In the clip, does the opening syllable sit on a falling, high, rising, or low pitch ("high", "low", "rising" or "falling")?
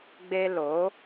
high